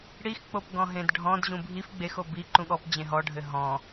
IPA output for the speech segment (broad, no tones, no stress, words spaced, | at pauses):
ɽixk͡popɡɔ̃ ɦẽdɖʱɔ̃d ʑũbʱif ɡ͡bexo bi ǃũɠɔp d͡ʑẽɦɔɖʱɘ ɦɔ̃